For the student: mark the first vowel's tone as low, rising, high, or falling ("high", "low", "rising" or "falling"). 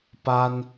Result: high